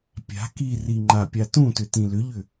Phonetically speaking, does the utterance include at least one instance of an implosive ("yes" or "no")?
no